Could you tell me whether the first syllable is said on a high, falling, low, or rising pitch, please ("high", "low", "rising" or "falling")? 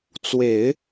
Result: low